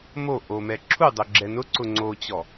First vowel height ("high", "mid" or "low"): mid